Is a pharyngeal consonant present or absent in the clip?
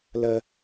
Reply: absent